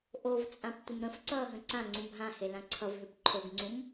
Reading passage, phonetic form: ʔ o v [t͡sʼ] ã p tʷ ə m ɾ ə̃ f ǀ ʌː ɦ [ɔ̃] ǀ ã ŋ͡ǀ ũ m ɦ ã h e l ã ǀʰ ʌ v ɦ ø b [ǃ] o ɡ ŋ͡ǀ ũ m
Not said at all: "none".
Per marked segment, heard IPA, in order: t͡sʼ, ə̃, ǃʰ

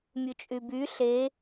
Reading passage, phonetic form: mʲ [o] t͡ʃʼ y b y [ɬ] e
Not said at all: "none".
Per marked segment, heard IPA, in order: u, ɬ

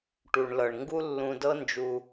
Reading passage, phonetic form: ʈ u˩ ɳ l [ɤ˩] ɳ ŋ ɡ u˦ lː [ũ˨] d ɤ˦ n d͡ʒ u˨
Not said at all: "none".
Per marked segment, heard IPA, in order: ɤ˩, ũ˨

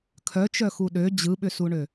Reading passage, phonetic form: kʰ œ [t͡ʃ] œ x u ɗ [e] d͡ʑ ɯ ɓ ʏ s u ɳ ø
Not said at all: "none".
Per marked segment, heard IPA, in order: t͡ʃ, ø

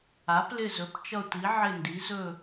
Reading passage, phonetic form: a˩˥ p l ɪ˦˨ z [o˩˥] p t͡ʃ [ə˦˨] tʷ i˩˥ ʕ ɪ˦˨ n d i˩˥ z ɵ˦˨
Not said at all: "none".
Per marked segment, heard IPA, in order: ɵ˩˥, ʌ˦˨

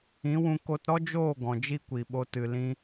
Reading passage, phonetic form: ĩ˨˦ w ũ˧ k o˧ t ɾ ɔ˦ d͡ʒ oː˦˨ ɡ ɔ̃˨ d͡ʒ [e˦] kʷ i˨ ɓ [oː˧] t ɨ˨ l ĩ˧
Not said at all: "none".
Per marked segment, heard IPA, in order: i˦, o˧

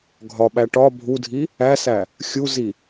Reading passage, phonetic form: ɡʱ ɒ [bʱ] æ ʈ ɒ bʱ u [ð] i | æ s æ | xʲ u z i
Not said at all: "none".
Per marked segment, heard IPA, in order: ɓ, dʱ

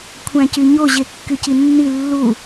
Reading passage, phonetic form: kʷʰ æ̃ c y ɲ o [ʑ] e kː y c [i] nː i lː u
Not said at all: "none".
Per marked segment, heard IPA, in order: ʑ, i

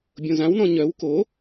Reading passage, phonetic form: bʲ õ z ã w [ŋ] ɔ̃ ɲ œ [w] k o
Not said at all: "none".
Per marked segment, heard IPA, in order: n, w

